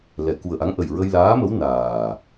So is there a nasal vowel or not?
no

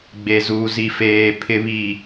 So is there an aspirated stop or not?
yes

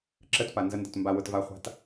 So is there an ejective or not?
no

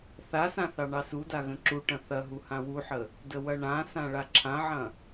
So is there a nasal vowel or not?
yes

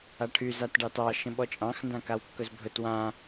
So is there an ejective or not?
yes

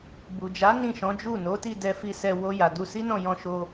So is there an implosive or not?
no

